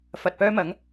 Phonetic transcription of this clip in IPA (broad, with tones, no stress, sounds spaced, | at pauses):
f ɐ˨ t̚ p œː˧ m ɐ˨˧ ŋ